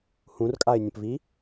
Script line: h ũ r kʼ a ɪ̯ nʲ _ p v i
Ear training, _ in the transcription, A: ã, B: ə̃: B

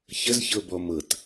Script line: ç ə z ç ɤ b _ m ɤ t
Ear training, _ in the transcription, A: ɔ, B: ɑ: A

